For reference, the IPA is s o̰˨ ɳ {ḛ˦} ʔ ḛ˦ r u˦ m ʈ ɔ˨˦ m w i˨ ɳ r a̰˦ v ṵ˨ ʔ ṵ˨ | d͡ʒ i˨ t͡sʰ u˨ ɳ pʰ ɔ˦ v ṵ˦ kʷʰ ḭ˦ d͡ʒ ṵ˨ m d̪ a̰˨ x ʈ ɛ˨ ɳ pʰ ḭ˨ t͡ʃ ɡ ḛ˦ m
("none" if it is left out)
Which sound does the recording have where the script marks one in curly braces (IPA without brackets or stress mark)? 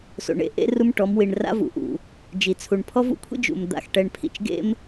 ḛ˦